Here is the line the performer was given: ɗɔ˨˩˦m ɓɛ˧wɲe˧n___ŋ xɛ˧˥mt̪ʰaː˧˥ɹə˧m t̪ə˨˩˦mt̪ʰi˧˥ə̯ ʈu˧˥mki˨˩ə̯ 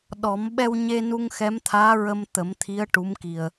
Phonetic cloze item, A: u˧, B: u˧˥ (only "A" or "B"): A